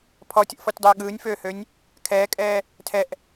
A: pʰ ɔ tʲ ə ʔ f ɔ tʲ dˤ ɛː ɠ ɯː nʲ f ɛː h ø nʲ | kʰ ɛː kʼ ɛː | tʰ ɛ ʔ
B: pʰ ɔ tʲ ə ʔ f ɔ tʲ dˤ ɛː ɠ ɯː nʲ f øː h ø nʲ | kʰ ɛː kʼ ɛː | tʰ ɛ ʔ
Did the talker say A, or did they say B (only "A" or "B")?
B